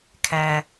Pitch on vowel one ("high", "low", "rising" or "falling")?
low